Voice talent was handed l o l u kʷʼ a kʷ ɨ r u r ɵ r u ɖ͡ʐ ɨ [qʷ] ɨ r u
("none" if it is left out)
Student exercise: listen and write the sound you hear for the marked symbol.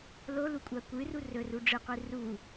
qʷ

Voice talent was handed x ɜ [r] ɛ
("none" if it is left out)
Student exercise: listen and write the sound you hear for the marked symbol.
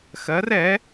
r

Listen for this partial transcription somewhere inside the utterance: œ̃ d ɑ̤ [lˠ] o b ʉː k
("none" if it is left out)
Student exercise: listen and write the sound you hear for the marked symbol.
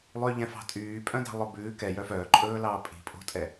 lˠ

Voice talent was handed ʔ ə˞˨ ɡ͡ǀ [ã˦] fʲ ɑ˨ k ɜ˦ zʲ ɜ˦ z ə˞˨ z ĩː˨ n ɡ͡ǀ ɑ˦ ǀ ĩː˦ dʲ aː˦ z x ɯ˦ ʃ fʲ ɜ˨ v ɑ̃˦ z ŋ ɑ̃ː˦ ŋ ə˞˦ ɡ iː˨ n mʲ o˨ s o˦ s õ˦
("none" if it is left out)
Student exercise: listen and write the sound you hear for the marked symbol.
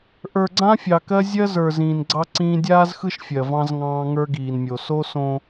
ã˦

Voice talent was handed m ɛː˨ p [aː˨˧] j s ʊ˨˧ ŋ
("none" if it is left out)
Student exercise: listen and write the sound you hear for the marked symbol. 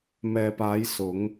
aː˨˧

